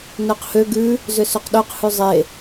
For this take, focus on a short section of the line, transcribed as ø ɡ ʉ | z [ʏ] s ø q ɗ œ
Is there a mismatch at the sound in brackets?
no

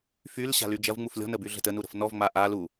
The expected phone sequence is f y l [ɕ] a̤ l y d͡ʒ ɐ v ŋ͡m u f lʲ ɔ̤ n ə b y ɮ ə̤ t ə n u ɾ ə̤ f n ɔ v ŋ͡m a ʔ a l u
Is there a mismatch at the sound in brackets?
no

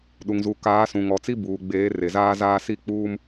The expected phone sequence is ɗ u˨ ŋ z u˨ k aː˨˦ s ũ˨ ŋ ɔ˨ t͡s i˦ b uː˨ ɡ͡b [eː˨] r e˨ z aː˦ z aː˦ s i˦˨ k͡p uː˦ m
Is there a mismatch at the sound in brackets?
yes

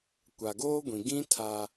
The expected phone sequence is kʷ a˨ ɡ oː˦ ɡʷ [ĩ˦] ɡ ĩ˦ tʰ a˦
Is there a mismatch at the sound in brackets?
yes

